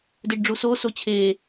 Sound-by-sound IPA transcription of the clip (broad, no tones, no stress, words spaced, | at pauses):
deɖɖ͡ʐuso sot͡ɕʰe